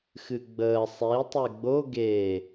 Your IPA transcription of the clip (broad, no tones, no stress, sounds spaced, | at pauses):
x ɨ ɡ͡b əː sˤ i tˤ e ɡ͡b o ɡ eː